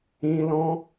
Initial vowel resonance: nasal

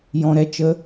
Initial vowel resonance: nasal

